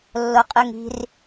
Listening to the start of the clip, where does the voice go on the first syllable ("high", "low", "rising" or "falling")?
high